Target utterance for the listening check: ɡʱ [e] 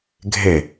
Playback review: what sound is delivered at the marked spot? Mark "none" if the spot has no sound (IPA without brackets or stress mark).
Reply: e